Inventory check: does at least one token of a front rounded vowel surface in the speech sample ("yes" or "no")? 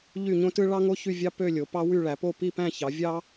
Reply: yes